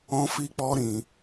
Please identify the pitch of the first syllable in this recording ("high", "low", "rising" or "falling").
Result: high